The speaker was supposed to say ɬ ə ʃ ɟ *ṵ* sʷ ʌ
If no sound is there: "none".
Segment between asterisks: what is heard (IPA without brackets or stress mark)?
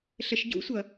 ṵ